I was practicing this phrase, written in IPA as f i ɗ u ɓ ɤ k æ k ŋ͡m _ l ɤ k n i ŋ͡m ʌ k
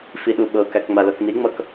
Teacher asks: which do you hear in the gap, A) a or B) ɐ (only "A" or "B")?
A